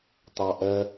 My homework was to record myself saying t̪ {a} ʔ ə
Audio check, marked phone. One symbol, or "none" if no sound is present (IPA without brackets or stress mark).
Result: ɑ